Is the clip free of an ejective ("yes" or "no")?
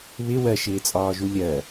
no